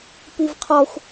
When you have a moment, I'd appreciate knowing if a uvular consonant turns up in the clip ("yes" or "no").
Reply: yes